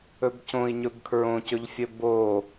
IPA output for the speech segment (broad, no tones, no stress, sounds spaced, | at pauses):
ɵ b c õ i̯ ɲ ɵ b kʰ ɹ õ c ɵ ʎ fʲ ɵ b o